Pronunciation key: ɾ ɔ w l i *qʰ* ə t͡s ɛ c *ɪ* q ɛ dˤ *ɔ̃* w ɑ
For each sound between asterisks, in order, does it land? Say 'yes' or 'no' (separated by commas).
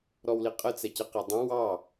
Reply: no, yes, no